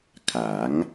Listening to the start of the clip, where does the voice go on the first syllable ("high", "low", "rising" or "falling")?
rising